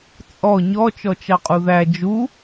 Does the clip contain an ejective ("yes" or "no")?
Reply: yes